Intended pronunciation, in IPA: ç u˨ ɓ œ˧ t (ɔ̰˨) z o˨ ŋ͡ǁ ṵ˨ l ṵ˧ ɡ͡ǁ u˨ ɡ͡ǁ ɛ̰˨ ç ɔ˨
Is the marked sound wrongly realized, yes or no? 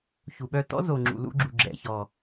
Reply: yes